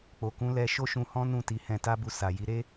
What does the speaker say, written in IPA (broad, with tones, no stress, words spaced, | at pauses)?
k͡po˨kũ˨˦ lɛ˧ ʃo˦ʃũ˧hɔ̃˦nũ˦˨ ti˨˦hɛ̃˧ta˦bu˧ sa˨ji˨˦ ɾe˦